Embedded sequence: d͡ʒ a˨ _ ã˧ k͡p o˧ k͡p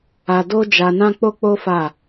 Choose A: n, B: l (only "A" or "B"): A